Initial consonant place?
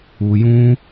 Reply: palatal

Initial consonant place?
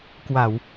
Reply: velar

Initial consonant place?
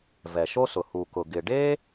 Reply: labial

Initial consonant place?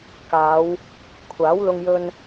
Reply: velar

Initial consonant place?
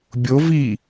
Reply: labial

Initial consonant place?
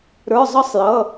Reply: alveolar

